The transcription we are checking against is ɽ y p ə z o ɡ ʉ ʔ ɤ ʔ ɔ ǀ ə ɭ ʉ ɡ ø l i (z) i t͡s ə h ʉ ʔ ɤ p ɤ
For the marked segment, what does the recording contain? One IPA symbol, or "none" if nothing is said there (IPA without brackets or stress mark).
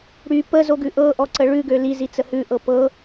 z